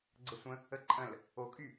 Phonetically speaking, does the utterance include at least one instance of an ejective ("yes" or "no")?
yes